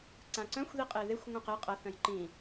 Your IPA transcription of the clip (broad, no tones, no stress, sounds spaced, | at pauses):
ǀ ã ǀ œ̃ xʷ ð i qʼ e ð e xʷ ŋʷ œ̃ q e qʼ ɐ θ œ̃ j ǃ ĩ